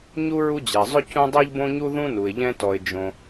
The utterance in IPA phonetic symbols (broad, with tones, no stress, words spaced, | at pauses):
ɲu˦ ɹu˦d͡ʑɛ˩zˤʏ˥ cũ˦dˤe˥ʎbõ˥ɲu˥ ðũ˥nu˩ɪ̯ʎɛ̃˦ tɔ˩ɪ̯d͡ʒõ˩